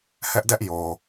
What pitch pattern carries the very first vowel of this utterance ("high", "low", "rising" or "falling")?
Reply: high